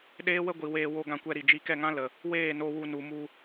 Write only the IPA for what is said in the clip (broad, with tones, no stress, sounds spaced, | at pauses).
ɗ eː˦ w ə˦ ɡʷ i˨ w eː˧ w o˧ ɡ ã˧ kʷ ɛ˧ ɾ i˨ d͡ʒ i˧ k ɛ˦˨ ŋ ã˦ l ə˨ | w eː˦˨ n o˧ w u˧ n u˨ m u˧